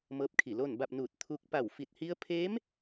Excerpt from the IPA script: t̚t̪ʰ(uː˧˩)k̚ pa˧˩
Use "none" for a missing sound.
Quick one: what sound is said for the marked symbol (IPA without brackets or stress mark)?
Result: uː˧